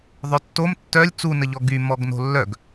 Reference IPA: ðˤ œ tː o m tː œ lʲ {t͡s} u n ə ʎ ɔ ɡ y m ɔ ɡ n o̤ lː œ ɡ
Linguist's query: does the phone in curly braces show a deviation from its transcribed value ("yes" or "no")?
no